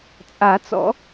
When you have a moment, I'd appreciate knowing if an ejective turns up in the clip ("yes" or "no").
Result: yes